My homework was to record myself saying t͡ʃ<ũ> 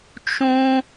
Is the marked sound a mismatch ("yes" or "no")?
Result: no